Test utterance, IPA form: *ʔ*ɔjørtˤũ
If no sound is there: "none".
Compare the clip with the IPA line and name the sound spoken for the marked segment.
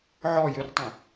ʕ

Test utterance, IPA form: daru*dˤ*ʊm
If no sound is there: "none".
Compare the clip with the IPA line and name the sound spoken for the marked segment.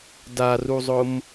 zˤ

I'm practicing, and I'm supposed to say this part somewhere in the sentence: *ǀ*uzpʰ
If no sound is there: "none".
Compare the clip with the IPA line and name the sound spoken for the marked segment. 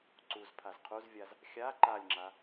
ǀ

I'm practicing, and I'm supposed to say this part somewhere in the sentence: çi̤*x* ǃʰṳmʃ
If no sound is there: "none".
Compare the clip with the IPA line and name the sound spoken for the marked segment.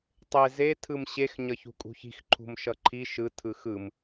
x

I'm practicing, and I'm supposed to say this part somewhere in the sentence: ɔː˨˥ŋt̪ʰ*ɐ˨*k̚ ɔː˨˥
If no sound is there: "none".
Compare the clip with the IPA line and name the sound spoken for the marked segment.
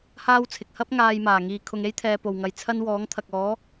ɐ˨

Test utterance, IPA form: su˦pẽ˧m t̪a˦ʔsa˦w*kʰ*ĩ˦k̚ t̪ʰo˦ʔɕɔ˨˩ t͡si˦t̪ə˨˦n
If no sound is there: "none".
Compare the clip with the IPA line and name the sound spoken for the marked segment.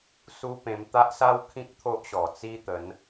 kʰ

